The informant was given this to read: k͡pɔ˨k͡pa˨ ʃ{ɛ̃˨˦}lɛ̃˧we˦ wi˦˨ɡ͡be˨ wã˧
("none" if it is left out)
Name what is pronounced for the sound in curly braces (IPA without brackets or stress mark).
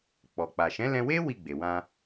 ɛ̃˨˦